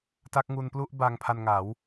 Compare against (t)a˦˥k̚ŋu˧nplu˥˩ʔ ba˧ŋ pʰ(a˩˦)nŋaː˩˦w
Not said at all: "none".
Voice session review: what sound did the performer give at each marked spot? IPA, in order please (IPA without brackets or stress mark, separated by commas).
t, a˧